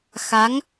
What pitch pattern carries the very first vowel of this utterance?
rising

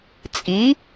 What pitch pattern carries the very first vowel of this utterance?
rising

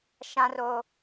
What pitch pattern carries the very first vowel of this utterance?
high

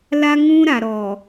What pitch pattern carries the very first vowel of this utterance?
high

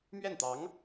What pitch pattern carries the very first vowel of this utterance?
falling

